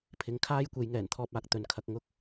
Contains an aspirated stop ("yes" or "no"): yes